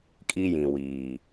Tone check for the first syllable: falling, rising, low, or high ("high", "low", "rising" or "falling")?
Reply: high